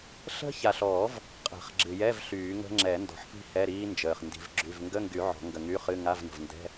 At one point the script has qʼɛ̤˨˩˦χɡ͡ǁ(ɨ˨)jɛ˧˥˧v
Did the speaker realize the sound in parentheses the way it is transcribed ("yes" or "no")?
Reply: yes